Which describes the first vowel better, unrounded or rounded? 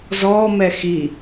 rounded